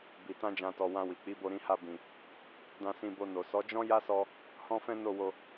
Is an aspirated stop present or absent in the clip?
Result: absent